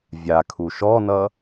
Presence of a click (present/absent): absent